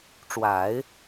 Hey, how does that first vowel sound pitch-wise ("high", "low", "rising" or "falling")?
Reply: low